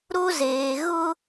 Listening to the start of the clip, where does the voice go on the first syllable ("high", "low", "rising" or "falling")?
high